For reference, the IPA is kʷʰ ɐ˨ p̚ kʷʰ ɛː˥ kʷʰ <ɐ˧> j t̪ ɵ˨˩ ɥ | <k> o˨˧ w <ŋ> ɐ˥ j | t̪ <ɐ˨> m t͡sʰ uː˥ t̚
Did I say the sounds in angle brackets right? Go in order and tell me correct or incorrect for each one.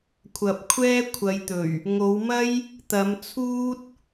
incorrect, incorrect, incorrect, incorrect

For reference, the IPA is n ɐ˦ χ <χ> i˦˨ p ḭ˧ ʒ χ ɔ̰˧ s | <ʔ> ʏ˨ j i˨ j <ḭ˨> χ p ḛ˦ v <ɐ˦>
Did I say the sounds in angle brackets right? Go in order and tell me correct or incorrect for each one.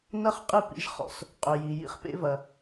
incorrect, incorrect, incorrect, incorrect

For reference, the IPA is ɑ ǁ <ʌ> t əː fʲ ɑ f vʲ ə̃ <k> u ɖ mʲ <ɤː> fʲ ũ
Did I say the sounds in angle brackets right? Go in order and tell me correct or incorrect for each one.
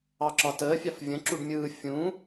incorrect, incorrect, incorrect

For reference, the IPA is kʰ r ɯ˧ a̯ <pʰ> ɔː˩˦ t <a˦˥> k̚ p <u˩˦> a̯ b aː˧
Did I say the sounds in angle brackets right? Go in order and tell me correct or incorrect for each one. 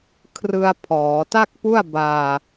correct, incorrect, incorrect

